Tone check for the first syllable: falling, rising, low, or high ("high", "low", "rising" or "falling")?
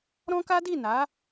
high